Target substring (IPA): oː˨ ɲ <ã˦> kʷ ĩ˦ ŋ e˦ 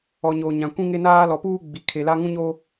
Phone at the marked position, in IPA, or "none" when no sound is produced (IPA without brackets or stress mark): ã˨